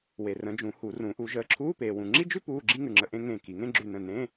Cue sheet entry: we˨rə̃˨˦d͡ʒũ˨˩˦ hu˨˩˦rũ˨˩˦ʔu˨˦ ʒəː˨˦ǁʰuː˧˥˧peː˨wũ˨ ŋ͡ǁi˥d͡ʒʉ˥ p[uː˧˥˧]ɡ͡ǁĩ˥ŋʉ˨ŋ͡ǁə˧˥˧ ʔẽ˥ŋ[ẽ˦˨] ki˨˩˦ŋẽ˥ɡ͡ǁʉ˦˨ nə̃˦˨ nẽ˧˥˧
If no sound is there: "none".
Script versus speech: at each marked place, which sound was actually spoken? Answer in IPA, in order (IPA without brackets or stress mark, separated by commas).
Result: uː˧˥˧, ẽ˦˨